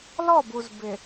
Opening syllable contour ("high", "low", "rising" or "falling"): falling